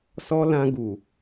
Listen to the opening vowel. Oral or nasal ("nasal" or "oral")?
oral